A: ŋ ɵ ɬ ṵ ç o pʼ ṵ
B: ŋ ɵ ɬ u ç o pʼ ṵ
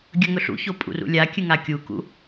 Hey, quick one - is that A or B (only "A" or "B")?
A